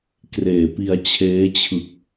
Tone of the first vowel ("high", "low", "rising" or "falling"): low